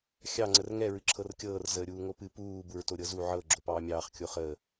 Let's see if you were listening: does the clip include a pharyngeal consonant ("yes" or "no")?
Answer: yes